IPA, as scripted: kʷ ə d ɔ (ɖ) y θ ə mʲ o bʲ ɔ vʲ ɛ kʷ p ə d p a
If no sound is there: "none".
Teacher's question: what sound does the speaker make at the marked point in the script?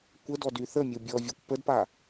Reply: d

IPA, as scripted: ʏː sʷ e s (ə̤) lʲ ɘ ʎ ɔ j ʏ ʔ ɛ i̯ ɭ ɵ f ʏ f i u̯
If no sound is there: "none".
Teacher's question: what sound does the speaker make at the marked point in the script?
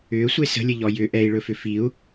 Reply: ə̤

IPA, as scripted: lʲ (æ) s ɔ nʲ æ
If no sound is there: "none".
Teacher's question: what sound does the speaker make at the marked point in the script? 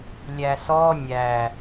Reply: æ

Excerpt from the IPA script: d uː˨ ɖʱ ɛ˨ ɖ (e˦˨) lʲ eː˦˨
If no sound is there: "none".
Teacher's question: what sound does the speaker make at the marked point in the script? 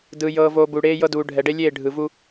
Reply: e˦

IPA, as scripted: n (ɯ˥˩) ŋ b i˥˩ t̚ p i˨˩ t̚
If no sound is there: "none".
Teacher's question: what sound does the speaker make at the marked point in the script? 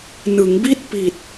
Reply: ɯ˩˦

